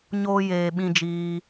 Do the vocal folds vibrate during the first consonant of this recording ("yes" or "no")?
yes